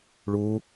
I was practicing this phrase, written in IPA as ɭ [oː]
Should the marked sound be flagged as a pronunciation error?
yes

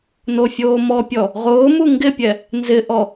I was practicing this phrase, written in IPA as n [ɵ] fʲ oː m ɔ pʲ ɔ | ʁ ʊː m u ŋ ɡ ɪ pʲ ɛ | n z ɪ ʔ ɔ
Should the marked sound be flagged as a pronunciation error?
yes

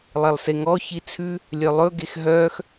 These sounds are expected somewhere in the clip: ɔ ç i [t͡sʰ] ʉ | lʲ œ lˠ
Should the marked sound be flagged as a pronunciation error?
no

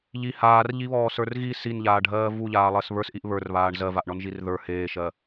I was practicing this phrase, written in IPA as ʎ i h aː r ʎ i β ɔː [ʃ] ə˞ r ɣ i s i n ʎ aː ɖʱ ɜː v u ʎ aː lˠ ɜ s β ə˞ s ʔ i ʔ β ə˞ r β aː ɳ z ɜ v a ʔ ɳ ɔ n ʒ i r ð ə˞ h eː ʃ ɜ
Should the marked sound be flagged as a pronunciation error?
yes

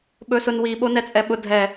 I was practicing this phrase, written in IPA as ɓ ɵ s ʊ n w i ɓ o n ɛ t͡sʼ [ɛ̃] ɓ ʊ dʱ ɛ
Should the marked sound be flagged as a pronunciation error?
yes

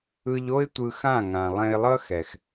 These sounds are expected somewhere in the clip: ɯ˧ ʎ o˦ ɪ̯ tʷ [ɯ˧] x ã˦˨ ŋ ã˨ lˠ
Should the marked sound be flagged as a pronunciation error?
no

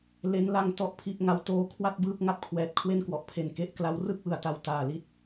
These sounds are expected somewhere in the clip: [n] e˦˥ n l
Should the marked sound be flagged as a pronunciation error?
yes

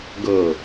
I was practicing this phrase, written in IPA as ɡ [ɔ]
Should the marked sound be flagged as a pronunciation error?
yes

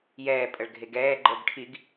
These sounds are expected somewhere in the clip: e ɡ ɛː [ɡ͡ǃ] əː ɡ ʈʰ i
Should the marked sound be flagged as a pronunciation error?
no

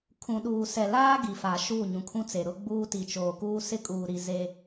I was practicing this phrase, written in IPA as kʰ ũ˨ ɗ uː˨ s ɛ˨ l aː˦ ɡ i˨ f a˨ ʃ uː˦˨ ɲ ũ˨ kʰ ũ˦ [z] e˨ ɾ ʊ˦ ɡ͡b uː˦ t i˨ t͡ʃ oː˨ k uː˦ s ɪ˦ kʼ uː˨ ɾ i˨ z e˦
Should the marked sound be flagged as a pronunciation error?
yes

